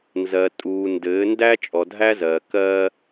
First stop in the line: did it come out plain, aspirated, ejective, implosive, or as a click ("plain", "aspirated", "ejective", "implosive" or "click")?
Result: ejective